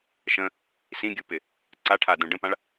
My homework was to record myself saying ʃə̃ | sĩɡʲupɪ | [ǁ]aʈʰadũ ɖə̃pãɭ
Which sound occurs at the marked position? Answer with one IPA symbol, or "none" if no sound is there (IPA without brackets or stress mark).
ǀ